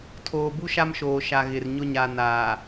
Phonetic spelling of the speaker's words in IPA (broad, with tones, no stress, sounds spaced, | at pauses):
tʰ oː˨ b u˦ ʃ a˦ m ʃ oː˨ ʃ a˨ ɣ ɪ˨ r ɲ ʊ˦ ɲ a˨ n aː˨